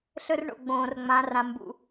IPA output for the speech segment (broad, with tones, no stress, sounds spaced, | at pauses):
ɬ ɵ˦ r ɳ o̰˨ ɡ͡b õː˨ r ŋ͡m ã˨˦ r ã˨ m b ṵ˨